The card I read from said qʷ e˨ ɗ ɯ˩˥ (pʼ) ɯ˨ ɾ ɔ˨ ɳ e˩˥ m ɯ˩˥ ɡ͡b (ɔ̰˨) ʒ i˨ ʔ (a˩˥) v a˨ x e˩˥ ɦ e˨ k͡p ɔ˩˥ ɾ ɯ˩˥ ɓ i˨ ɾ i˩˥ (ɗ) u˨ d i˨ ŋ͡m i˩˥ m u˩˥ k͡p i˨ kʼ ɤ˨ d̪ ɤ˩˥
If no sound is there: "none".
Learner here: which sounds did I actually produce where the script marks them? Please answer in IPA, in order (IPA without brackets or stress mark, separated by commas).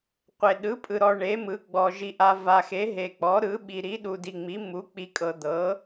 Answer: pʼ, ɔ˨, a˨, ɗ